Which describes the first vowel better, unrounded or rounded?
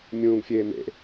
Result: rounded